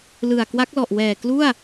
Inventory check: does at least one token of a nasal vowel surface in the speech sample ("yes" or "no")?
no